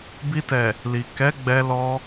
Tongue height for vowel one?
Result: high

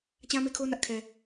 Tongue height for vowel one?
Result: low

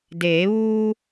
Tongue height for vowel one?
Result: mid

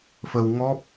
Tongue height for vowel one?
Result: mid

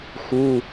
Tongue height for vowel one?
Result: high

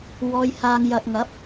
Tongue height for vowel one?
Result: mid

